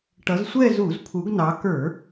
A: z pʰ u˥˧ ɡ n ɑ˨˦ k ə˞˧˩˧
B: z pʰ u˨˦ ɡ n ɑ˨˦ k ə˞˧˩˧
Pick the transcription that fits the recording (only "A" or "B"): B